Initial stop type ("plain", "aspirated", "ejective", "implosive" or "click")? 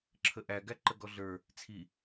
click